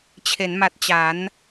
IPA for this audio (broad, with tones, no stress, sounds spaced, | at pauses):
t͡ɕʰ e˩˦ n m a˨˩ t̚ t͡ɕ a˩˦ n